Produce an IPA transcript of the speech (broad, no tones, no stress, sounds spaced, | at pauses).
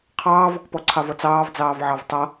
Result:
qʰ ɑː v ɔ k p ɔ ǀʰ ɑ v ʌ t͡s ɑː v d͡z ɑː v ʕ ɑ v tˤ ʌ